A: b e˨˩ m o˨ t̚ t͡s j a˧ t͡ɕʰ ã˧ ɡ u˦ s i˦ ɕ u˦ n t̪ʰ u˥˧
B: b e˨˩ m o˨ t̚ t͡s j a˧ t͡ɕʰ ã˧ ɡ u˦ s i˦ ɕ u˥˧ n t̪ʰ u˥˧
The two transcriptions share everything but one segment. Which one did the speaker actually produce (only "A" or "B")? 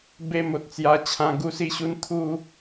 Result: A